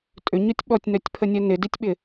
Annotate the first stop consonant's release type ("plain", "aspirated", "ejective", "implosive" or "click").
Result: ejective